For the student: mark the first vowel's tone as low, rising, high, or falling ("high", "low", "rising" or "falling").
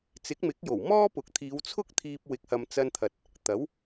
rising